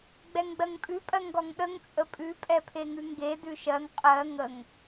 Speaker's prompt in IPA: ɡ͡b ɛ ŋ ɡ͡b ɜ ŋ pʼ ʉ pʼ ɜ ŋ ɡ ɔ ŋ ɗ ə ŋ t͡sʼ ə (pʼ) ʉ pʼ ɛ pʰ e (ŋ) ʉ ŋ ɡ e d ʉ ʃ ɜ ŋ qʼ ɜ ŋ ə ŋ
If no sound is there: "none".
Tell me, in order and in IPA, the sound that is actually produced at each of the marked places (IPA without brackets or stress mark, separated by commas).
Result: pʼ, ŋ